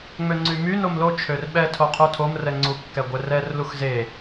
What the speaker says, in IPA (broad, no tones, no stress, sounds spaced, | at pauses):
ŋ͡m ø ŋ͡ǀ y m y n o m l o t͡ʃʰ ø r ɓ ɛ tʰ o qʰ u tʰ o m r ɛ ŋ͡ǀ u kː ɛ ɡʷ ɛ r ɛ r l u x z e